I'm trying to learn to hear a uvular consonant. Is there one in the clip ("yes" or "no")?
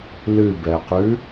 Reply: yes